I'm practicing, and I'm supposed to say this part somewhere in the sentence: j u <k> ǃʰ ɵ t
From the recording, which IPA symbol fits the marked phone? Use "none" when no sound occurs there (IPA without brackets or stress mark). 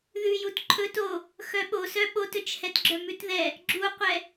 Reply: t